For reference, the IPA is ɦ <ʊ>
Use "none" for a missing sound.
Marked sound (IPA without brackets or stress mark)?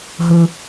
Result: ə